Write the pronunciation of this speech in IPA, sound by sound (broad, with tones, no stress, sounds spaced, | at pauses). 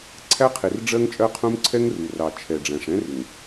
ǀʰ æ˦ qʰ i˨ r ɖ͡ʐ ɜ˦ ŋ t͡ʃʼ ɜ˦ qʰ ũ˦ m ǀʰ ɛ˦ ŋ r u˨ r ɑ˨ t͡ʃʰ ɛ˨ ɖ͡ʐ æ̃˨ ʂ ɛ̃˦ r ɪ˨ ŋ